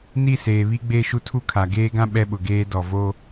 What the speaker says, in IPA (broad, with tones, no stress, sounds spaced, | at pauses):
n i˦˨ s eː˨ β i˦ ɡ͡b e˦˨ ʃ u˦ tʰ u˦ kʰ a˨ ɡ eː˦ ɡ ã˦ ɓ ɛ˦ ɓ ʊ˨ ɡ eː˦ d ɔ˨ v o˦